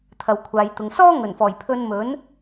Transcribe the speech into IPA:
t̪ʰ ɐ˨ w kʷʰ aː˨˧ j t̪ ʊ˨˧ ŋ s ɔː˥ ŋ ɵ˨˩ n f ɔː˨˩ j pʰ ɵ˧ n m ɵ˨˥ n

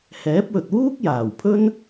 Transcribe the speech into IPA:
h ɛː˨˥ p̚ w ɵ˨ t̚ w uː˥ k̚ j aː˨˩ w pʰ ɵ˥ n

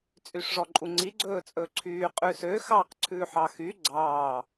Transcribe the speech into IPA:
t͡sʼ y ʂ ʐ ɔ ǃʼ u ŋ͡ǀ i ɡ͡ǀ ɵː t͡sʼ ɵ ǀʰ yː qʼ ʉ s ø x ɑ q ǀʰ ʉː ħ ɑ x y ɡ͡ǀ ɑː

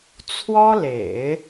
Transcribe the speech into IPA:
t͡sʰ w ɔ˥ l ḛ˨˩˦ ɪ̯

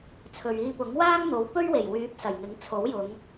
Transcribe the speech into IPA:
t͡sʰ ɵ˨ ɥ iː˧ p ʊ˨˥ ŋ w aː˥ ŋ n̪ o˨˥ w p ɵ˥ ɥ w e˨˩ j w yː˨˥ p̚ s ɐ˨˩ j ŋ ɪ˨˥ ŋ t͡sʰ o˨˥ w j ʊ˨˧ ŋ

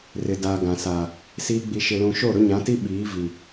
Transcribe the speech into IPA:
r ɪ˨ d aː˨ ɡ ã˨ s aː˨ | s iː˦ ɡ͡b i˨ ʃ ɪ˨ l ũ˨ ʃ o˦˨ ɾ ʊ˦ ɲ ã˨˦ t i˦ ɓ iː˨˦ v i˨

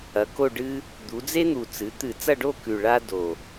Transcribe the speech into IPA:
ɐ˩˧ k o˥˧ ɖ ɨ˥ | d̪ u˩˧ d͡z e˥ n̪ u˨˩ t͡s ɨ˩˧ t̪ ɨ˧˩˧ t͡s ɐ˥˧ ɖ o˥˧ k ʉ˨˩ ɭ a˥ d o˨˩

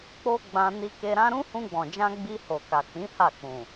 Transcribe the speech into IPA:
k͡p o˦ ɡ͡b ã˧ n i˧ k e˧ ɾ ã˦ ɾ ũ˦ h ũ˧ ɡ͡b ɔ̃˨ d͡ʒ ã˧ ɡ͡b i˧ h o˨ k a˨ k͡p ĩ˨˦ h a˦˨ k͡p ũ˨

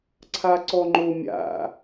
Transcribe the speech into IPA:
ǀʰ a ǀ ɔ ŋ͡ǃ o mʲ a̰

